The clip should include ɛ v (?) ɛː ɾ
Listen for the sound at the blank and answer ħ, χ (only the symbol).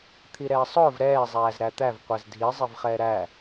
χ